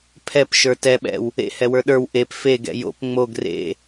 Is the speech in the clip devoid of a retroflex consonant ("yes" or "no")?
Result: yes